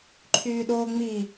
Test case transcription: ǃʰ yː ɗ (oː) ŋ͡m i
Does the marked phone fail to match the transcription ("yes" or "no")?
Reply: no